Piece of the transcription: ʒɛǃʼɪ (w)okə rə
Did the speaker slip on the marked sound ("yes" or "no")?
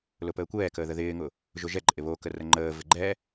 yes